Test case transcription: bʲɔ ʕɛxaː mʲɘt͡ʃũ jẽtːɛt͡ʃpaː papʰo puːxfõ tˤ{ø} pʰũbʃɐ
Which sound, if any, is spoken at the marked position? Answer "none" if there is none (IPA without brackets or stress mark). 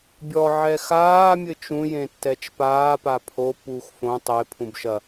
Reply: e